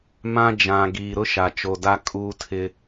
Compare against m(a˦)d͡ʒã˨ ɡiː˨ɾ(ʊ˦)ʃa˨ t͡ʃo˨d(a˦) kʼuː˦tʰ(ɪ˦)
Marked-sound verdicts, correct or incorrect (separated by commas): incorrect, correct, correct, correct